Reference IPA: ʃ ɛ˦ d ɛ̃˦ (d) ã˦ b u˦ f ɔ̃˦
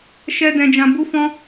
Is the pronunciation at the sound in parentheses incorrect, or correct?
incorrect